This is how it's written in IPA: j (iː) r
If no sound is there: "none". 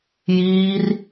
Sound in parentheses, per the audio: iː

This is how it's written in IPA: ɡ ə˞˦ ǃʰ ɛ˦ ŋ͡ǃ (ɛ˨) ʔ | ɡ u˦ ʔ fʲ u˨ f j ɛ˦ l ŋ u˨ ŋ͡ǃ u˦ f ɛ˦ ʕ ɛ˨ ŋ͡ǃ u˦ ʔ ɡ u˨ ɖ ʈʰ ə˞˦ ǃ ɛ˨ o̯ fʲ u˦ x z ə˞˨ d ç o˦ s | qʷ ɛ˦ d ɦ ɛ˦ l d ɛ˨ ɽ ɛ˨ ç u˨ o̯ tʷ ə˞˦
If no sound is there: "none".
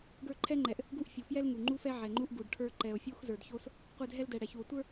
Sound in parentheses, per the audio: ɛ˨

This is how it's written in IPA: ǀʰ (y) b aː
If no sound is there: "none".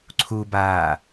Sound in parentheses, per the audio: u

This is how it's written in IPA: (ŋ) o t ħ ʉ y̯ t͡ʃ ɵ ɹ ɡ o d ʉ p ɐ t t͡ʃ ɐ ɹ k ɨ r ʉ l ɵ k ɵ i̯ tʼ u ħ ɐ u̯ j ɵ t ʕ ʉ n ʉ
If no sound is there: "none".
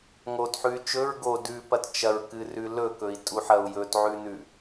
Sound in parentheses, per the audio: ŋ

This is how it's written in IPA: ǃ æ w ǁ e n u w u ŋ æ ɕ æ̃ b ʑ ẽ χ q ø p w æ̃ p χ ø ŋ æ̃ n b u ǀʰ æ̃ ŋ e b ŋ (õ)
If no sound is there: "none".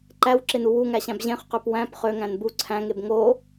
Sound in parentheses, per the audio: o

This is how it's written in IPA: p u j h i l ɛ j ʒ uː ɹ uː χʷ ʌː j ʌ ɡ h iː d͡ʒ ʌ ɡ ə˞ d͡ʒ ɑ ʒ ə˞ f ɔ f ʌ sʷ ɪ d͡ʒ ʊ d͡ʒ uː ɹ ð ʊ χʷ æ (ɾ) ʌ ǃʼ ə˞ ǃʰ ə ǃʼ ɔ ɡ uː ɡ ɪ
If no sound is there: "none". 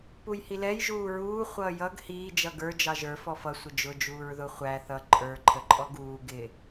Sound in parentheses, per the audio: θ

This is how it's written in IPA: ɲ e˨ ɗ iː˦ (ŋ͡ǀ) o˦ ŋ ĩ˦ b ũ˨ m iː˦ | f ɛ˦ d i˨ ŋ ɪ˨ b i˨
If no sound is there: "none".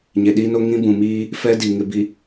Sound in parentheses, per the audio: n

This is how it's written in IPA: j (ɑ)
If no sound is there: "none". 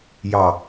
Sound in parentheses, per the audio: ɑ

